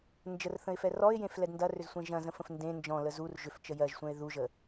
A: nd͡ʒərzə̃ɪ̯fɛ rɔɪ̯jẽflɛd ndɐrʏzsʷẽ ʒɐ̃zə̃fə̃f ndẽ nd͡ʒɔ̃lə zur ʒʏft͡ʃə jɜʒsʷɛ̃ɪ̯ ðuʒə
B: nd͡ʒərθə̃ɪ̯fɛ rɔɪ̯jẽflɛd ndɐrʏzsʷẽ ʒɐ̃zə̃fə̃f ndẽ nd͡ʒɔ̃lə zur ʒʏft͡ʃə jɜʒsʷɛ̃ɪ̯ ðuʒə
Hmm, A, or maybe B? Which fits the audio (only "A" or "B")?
B